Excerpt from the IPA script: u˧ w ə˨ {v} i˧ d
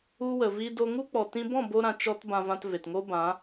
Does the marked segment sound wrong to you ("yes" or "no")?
no